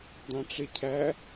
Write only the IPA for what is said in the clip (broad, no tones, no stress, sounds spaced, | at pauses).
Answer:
d̪ ɑ̃ ʈ͡ʂ e cʰ æ